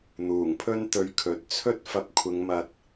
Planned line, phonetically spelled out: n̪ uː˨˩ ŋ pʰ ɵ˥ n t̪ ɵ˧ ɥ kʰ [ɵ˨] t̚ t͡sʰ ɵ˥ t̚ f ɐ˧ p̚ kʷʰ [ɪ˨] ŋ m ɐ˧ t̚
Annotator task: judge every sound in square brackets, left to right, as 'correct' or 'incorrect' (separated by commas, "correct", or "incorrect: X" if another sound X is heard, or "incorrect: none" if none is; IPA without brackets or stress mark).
incorrect: ɵ˨˥, incorrect: ɪ˨˧